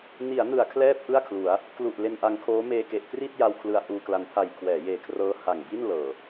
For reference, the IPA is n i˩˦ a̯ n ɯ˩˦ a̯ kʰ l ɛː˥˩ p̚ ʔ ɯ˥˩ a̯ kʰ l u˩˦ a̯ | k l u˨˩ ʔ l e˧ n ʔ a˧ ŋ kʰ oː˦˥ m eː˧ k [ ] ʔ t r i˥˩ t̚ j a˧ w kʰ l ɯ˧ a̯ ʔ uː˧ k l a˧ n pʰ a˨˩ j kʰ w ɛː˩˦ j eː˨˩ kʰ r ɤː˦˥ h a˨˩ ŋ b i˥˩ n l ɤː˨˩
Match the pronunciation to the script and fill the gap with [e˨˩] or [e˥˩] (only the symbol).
e˨˩